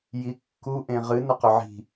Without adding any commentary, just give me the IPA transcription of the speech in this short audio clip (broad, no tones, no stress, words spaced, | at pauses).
jikːu ʔẽʁɨ nɐqɵʕi̤